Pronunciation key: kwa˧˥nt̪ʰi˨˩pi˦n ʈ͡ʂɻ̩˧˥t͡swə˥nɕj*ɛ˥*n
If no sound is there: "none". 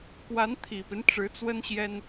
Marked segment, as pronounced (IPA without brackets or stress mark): ɛ˥